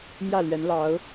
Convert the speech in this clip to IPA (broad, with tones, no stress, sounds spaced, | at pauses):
m j ä˥˩ l ɥ ɛ˧˥ n l ɑ˧˥ ʊ̯